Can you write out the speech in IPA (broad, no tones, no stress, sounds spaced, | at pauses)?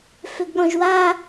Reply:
f ø ɡ ɠ ɔ̃ ʒ w a